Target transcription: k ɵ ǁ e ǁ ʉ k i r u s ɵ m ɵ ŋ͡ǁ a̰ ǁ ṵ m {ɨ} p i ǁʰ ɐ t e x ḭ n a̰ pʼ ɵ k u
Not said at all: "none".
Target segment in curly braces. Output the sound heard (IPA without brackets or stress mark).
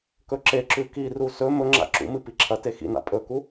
ɨ